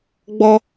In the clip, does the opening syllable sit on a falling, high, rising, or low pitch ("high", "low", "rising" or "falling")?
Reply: high